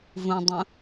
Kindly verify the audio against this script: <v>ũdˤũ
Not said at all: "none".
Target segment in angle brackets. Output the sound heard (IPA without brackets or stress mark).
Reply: v